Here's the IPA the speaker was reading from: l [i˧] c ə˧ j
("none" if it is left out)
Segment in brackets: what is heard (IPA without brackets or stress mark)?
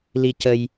i˧